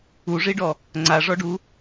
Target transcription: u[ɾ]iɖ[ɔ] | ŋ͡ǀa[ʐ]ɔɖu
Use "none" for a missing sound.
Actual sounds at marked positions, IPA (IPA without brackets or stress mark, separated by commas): ʐ, ɔ, ʐ